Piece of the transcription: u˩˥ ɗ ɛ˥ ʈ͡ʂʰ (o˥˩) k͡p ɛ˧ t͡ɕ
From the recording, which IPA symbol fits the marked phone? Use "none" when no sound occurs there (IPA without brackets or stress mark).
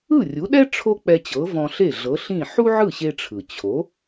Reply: o˥